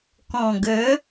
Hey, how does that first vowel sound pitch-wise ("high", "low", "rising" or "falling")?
low